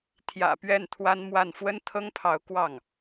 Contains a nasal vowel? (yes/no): no